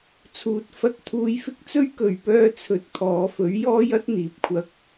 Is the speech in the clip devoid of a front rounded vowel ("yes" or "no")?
no